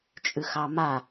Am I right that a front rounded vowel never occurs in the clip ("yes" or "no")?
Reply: yes